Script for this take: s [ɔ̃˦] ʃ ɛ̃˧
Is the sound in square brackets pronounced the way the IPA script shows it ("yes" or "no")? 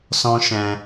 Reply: yes